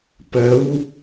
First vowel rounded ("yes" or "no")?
no